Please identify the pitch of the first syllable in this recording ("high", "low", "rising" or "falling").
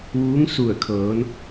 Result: rising